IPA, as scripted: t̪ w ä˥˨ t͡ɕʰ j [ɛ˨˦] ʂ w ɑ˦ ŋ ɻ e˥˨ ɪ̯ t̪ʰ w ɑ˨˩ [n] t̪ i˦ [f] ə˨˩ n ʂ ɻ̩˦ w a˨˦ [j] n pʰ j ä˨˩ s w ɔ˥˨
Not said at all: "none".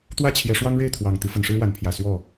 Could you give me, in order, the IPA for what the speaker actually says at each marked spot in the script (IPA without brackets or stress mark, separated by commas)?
ɛ˨˦, ŋ, f, none